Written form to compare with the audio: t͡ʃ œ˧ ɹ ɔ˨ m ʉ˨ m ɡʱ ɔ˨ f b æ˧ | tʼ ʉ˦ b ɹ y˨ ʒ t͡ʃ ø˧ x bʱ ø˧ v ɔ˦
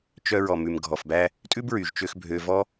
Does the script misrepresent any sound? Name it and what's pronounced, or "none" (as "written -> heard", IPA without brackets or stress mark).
none